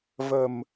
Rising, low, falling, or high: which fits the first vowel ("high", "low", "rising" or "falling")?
low